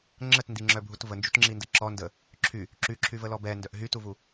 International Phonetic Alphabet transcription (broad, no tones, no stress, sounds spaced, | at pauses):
ŋ͡ǁ ə t n d i ŋ͡ǁ œ bʱ u t v ə n d͡ʒ u t ŋ͡ǁ i n d ə ǁ ɔ n d ə | ǁʰ y | ǁ y ǁʰ y v ə l ɔ b ɛ n d œ ʔ ɦ y t u v u